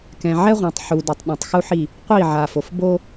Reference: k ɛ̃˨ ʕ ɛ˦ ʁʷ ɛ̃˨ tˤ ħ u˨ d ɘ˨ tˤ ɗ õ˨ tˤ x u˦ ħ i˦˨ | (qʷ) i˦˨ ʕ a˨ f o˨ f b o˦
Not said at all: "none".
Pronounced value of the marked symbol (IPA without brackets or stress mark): qʷ